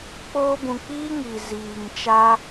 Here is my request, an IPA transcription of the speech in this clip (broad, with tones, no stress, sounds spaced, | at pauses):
k͡p oː˧ b ũ˨ k͡p iː˦ ŋ i˨ z iː˨ ŋ t͡ʃ a˧